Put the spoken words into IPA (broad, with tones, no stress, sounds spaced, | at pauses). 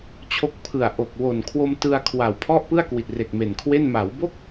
t͡ɕʰ o˦˥ k̚ pʰ ɯ˨˩ a̯ ʔ o˨˩ k̚ w o˨˩ n kʰ w o˧ m t ɯ˧ a̯ kʰ w a˨˩ w pʰ ɔ˥˩ ʔ p ɯ˥˩ a̯ k w i˨˩ t̚ r e˨˩ k̚ m e˨˩ n kʰ w e˥˩ n m a˩˦ w b o˥˩ k̚